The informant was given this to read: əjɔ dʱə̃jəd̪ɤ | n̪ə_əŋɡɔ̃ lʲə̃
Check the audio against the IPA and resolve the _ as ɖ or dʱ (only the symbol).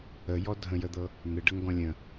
ɖ